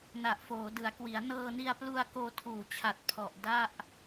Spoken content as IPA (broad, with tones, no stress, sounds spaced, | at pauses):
n a˨˩ ʔ f oː˩˦ d ɯ˩˦ a̯ k w i˩˦ a̯ n ɤː˧ n i˧ a̯ p l u˧ a̯ k oː˧ tʰ uː˨˩ t͡ɕʰ a˨˩ t̚ pʰ ɔ˨˩ ʔ d a˥˩ ʔ